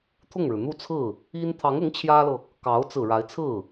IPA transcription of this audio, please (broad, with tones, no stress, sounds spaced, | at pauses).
t̪ʰ ʊ˥˩ ŋ ɻ ɻ̩˩ n̪ u˥˧ t͡sʰ ɹ̩˥˩ | i˥ n t̪ʰ ɑ˧˥ ŋ ʊ˧˥ ŋ t͡ɕʰ j ä˥ l ɤ˨ | k ɑ˧˥ ʊ̯ t͡s ɹ̩˨˩ ɻ a˧˥ ɪ̯ t͡sʰ ɹ̩˥˩